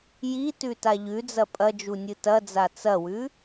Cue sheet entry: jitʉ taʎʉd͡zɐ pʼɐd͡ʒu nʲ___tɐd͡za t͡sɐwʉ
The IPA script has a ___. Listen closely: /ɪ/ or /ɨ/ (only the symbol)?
ɨ